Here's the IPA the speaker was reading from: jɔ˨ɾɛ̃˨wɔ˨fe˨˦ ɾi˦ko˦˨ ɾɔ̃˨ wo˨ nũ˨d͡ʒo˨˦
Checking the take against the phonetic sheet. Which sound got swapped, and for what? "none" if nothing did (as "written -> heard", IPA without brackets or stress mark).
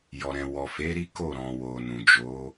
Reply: none